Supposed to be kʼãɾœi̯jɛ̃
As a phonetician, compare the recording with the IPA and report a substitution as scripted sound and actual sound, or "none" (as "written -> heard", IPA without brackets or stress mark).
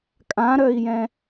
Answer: none